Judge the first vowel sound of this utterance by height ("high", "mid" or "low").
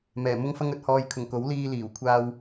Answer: mid